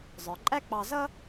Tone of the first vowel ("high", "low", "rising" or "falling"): low